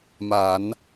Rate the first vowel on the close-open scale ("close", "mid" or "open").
open